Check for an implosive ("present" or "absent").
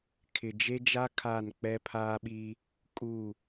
present